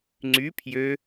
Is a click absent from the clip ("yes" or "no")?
no